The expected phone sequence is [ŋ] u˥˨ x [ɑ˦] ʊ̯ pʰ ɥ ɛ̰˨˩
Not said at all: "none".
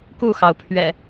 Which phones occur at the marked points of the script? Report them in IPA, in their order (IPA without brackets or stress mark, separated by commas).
k, ɑ˩